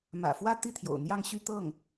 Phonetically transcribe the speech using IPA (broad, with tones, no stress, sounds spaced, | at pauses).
m ä̰˨˩ f w ä˥ t̪ i˥˩ t̪ʰ j o̰˨˩ ʊ̯ n̪ j ɑ˥˧ ŋ ɕ y˥˧ t̪ ɤ˥˩ ŋ